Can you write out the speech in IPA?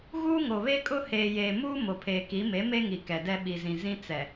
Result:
ɣ uː˦ ŋ o˨ β e˦ kʼ ʊ˦ h eː˨ j eː˨ m uː˦ m o˨ pʰ eː˨ k i˨˦ m e˨˦ m e˦ ŋ i˨ k ɛ˨ d ɛ˦ ɓ i˨ z ĩ˨ z ĩ˦ t͡s ɛ˨

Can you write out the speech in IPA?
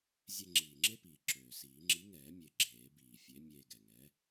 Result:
zʲ e˧ ŋ͡ǁ iː˨˩ ŋ͡ǁ e˥ p iː˨˩ ǁ øː˨˩ s iː˨˩˦ ŋ͡ǁ i˨˥ ŋ ɛː˨˩˦ mʲ e˨˩ ɡ͡ǁ eː˨˩˦ b iː˨˩ fʲ e˨˥ mʲ eː˧ ɡ ɛ˨˩ ŋ ɛː˨˥

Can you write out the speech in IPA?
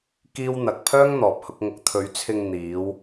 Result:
k iː˥ w n̪ ɐ˧ k̚ pʰ œː˥ ŋ n̪ ɔː˨ p̚ h ʊ˧ k̚ ŋ ʊ˨˥ k̚ t̪ʰ ɵ˨˧ ɥ t͡sʰ ɪ˧ ŋ n̪ iː˨˧ w

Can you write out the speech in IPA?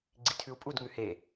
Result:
ɡ͡ǀ i tʰ ʉ u̯ pʼ u d ŋ ʉ h e

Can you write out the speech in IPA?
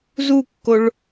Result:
z u kː o ɭ

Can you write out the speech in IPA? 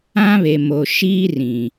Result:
ã˦ β e˨ m o˨ ʃ iː˦ r ĩ˨

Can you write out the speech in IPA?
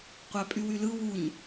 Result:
qʷ æ pʼ y w y l ɯ w u ɲ

